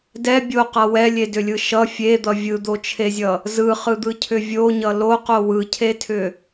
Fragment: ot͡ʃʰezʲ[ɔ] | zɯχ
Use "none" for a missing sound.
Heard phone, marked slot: ʌ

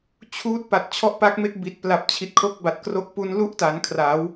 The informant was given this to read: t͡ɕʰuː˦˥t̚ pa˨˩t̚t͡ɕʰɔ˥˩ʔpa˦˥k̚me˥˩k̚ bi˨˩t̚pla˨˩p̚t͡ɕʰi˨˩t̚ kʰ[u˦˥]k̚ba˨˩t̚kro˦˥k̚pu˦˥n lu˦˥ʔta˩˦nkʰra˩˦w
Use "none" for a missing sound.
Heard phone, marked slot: o˦˥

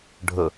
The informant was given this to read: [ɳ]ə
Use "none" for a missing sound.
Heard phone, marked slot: ɖʱ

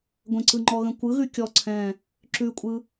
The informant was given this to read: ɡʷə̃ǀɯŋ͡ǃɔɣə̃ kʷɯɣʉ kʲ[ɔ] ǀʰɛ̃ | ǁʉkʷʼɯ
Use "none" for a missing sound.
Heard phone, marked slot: ɔ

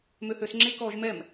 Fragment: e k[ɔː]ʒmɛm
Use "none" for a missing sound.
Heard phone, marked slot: ɔː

